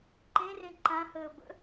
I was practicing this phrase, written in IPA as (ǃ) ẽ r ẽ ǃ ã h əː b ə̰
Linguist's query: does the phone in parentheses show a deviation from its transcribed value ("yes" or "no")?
no